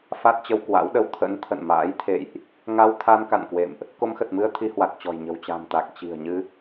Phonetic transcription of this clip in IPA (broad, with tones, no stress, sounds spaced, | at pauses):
f a˦˥ t̚ t͡ɕ ə˧ w k w a̰˧˥ w ɗ ə˧ w t̪ʰ ə̰˧˥ n t̪ʰ ə̰˧˨ n m a̰ː˧˥ j t̪ʰ ḛ˧˨ j ʔ | ŋ a˧ w t̪ʰ a˧ n k a̰˧˨ n k w ḛ˧˨ m ʔ | k o˧ m x ə˨˩ t̚ m ɨ˧ ə̯ t̪ʰ i˧ h w a˨˩ t̚ t͡ɕ ɔ̤˨˩ j ɲ ə̤˨˩ w t͡ɕ a̤˨˩ m t̪ a˨˩ k̚ t͡ɕ i̤˨˩ ə̯ ɲ ɨ˧